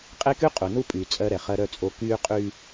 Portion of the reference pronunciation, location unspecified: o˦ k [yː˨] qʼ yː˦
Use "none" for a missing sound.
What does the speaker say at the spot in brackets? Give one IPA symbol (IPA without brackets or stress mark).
yː˦